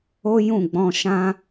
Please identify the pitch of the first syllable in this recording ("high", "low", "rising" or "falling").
high